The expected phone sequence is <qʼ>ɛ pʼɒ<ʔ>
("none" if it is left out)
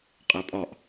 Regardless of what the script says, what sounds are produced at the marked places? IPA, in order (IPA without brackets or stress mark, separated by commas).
qʼ, ʔ